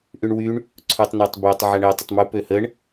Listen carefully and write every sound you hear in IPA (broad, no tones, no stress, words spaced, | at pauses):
ʔyɳwyɳ | ǀʰutˤnatˤbøtˤ ʕaɳɘ tˤətˤmu pøhəɳ